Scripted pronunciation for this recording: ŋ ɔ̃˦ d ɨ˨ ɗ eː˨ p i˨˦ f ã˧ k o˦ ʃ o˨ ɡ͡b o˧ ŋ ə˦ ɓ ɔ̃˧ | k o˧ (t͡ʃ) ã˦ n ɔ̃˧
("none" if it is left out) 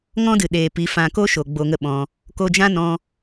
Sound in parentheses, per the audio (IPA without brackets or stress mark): d͡ʒ